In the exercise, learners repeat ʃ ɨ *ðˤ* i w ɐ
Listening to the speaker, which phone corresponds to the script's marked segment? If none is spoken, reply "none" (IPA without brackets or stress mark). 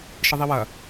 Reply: ðˤ